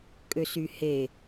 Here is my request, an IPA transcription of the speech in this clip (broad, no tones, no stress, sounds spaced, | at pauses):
kʼ ø s y h e